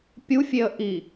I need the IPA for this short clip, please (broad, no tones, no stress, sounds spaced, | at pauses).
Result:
pʲ u fʲ e ə̯ ʔ i